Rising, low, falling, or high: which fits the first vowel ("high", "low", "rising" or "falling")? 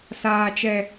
low